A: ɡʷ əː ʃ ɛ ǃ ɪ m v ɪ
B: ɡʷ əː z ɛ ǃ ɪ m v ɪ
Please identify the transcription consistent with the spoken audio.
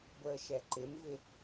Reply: A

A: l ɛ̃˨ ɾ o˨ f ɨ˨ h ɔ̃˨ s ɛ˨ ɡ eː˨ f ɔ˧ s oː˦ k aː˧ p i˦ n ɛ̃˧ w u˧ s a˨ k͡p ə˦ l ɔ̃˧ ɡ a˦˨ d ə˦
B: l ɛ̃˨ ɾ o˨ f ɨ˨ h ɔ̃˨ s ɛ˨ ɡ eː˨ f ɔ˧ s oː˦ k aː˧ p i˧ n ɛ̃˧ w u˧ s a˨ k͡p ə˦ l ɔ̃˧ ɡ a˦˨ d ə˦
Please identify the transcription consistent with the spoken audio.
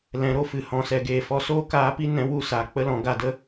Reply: A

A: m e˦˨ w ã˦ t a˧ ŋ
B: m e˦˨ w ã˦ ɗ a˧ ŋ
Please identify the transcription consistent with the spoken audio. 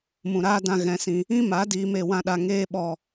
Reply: B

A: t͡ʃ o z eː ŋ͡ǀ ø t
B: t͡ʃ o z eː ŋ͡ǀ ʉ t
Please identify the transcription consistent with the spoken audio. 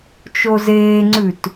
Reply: B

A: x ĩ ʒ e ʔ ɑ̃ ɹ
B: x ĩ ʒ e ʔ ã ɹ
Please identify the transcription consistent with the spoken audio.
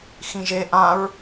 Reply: B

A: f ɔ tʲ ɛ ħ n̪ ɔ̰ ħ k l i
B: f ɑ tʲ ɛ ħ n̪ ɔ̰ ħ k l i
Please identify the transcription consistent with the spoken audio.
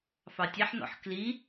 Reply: B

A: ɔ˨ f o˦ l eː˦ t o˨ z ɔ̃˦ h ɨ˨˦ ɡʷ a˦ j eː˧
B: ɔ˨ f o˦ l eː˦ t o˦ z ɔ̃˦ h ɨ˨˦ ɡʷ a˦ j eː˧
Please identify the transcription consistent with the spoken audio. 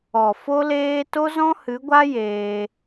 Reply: B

